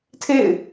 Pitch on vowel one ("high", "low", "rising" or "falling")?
falling